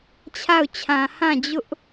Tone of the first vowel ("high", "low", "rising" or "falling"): falling